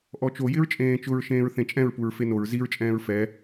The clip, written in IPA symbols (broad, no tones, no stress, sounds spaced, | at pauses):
ʔ ɔ t͡ʃ o j ɪ ɹ t͡ʃʼ ẽː t͡ʃ ʊ ɹ ʃ ẽː ɹ θ ẽ t͡ʃʼ ɛ̃ ɹ p u ɹ f e n o ɹ z i ɹ t͡ʃʼ ɛ̃ː ɹ f ɛ